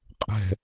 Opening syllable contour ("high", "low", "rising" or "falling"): low